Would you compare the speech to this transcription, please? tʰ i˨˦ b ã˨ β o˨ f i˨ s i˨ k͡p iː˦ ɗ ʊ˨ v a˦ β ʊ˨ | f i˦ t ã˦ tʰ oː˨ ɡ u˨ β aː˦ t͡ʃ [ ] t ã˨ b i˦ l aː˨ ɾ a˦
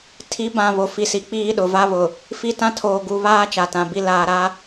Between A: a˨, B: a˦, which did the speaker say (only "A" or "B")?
A